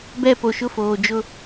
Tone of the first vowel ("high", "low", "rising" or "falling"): falling